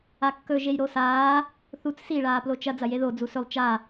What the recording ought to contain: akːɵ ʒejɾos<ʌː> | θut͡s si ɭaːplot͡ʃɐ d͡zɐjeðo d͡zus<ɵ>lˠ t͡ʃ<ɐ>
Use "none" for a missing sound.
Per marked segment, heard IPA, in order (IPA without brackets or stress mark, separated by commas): aː, ɵ, a